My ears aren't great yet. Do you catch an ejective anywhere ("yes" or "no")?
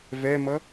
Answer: no